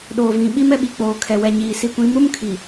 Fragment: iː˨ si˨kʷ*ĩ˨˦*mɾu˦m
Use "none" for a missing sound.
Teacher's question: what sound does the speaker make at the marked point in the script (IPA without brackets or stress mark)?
ĩ˨˦